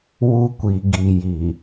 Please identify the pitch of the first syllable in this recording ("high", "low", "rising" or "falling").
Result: high